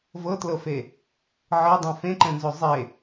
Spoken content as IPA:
v ɤ t l ɤ f e | ʕ ɤ dˤ ẽ f ẽ ǃ ɛ̃ n z o zˤ e

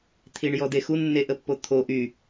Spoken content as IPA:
t̪ʰ i ɳ j ɔ d e x u nː e ʔ ə pː o t̪ʰ o ʔ y

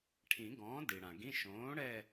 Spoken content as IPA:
ʈʰ ĩ˨˩˦ ɡ ɔ̃ː˩˥ d i˩ ɽ ã˩ ɡ ĩ˧˥˧ ʃ õː˩˥ ɽ ɛ˥˧

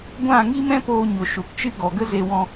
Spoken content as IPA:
ɡʷ ã˦˨ ŋ i˦ m ɛ̃˦ p oː˧ ɲ o˨ ʃ u˨ t t͡ʃ ɨ˦ ɡ ɔ˨ ɡ ə˦ z e˧ w ɔ̃˧

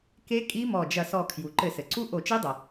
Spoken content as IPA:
k e˦˥ kʼ i˦˥ m ɔ˧˩ d͡ʒ ɐ˧˩ s ɔ˧˩ kʰ j u˩ ǃ ɘ˧˩˧ s ɘ˩ ǀ u˦˥ ʔ o˧˩˧ t͡ʃ i˦˥ dˤ ɐ˩

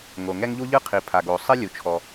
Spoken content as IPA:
ŋ o˩ ŋ ɛ˥ ŋ ʎ u˥ ʎ ɯ˥ qʰ i˩ pʰ a˩ ɡ o˩ sˤ e˥ lʲ u˩ t͡ʃʰ ɔ˩

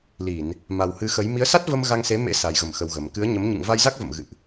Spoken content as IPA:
l i˧˩˨ n | m a˨˩ w h ɨ˨˦ x ə˨˦ j m i˨˦ ə̯ s a˦˥ t̚ v ə˧ m ɣ a˧ ŋ s e˨˦ m ḛ˧˥ s a˨˩ j ɣ ə˧˩ m x ə˨˩ w ɣ ə˨˩ m k ɨ˨˦ ə̯ ɲ ə˨˦ m ɲ ɨ̰˧˨ ŋ v a˧ j z a˦˥ k̚ v ə̰˧˨ m ɣ ɨ̰˧˨ ʔ

